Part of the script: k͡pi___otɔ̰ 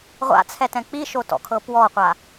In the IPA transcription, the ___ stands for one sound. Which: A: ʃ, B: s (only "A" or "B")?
A